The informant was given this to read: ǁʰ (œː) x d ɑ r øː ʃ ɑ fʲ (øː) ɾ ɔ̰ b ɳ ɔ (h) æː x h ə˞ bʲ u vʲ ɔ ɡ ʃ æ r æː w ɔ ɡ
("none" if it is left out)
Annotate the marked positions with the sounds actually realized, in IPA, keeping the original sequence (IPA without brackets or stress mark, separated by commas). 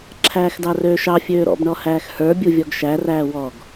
æː, øː, h